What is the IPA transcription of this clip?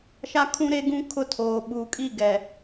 ʃ a˦ kʰ ũ˦ ɾ e˦ ɡ ũ˦ kʰ ʊ˦ tʰ oː˨ ɓ uː˨ kʼ i˦˨ ɡ ɛ˨

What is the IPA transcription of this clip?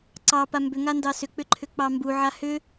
ǀ ɑ p a m b ʏ ŋ a n d ɑ s ʏ k͡p ʏ ǃʰ ʏ k͡p ɑ m b u ʕ a h ʏ

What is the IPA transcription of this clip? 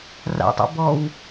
r a̰ tˤ o̰ b ɔ w

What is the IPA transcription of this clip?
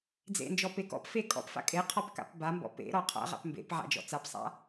d͡z ḛ n d͡ʒ ɔ p e k ɔ̰ p f e kʼ ɔ̰ p f a̰ kʼ e qʰ ɔ p k a̰ p b a m b ɔ̰ p ḛ ɾ ɔ qʰ a̰ ʁ a̰ p m b ḛ p ʕ a̰ d͡ʒ ɔ̰ t͡s a p sˤ a̰

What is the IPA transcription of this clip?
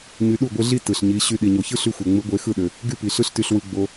ɲ y˧ ɗ u˦˨ ɡʷ ɯ˧ ɮ i˦ t ɯ˨ ɬ ɲ i˨˦ ɕ y˧ ɗ i˨ ɲ o˨ ç ɯ˦ ɬ y˦ xʷ e˨ ŋ͡m ɯ˨˦ ɡʷ e˨˦ x ɯ˦˨ ɗ ø˨ | ɡ y˦ p i˨ ɬ ɯ˦ ɬ t y˧ ɬ w ɯ˧ ɡ͡b o˧

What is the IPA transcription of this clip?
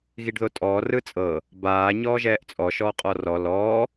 ɣ i ɖ ð o tʼ ɔː r ɯ t͡sʼ ɤ | b aː ɲ ɔː ʒ ɛː ʔ t͡sʼ ɔ ʃ ɔː qʼ ɔ r ɔ l ɔː

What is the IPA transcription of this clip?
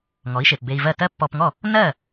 ŋ ɔ˩˥ i̯ ʃ e˩ p b e˧ i̯ v ɜ˥˩ t ɜ˥ pː ɔ˧ p ŋ ɔ˥˩ | n ɜ˥˩

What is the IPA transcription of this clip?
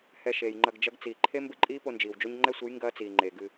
h ɛ˧ ʃ eː˨ j ŋ͡ǃ ɐ˧ ɡ d͡ʒ ɐ˦ ɡ t͡s iː˨ ǃʰ e˦ m b ɘ˦ ǃʼ iː˦ p o˧ n d͡ʒ iː˨ w d͡ʒ o˦ ɲ ŋ͡ǃ ɛ˦ sʷ ɨ˨˦ j ŋ ɡ ɐː˦ t͡s iː˨ ŋ͡ǃ eː˨ ɡ ɨ˧

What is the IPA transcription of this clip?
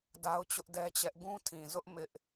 d a˦ ʊ̯ t͡ɕ ʊ˦ ʔ d ɛ˦ t͡ɕ ɛ˦ ʔ ɡ ũ˦ tʰ ĩ˨ z ʊ˦ ʔ m ɪ˦ ʔ

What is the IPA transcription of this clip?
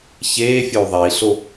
ç eː fʲ o u̯ ðˤ e i̯ ɬ o

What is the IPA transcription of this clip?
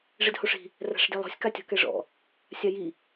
ʐ e d h o ʂ i̤ | r a̤ ʂ d e lˠ ɔ̤ sʲ k a tʲ ɔ̤ k ɛ ʐ ɔ̰ | sʲ a j i

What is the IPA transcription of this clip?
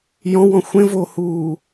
j ɔ̃ w ɔ̃ xʷ ẽ v oː h uː

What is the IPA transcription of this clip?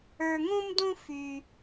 ə˞˧ ŋ ũ˦ m d ũ˦ f y˧

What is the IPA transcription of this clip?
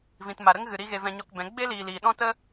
v ĩ˨ t m a˨ ɾ ə˦ ŋ ɣ ɨ˨ ɾ i˧ ɣ e˧ v ɛ̃˧ ɲ ɔ˧ k b ɛ̃˨˦ ɡ͡b e˦ l iː˨ l iː˨ ɗ ɔ̃˦ t ə˦

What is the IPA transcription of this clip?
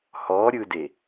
h ɔ ɾʲ ɯ d e

